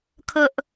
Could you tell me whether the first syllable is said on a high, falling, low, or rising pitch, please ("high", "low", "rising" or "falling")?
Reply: high